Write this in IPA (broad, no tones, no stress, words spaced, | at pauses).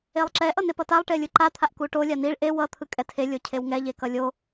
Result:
elˠǁɛ ʔʌnepʌtalˠ ʈelʲɯǃa t̪ʰaʔkuʈo lʲaniɭ ʔe wʌ t̪ʰɯkʼɛtʰe lʲocʰewŋɛ ʎekʌlʲo